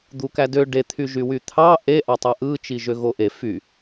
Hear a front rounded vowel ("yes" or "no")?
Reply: yes